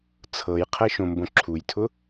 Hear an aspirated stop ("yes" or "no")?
yes